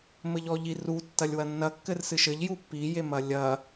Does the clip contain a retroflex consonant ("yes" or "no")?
no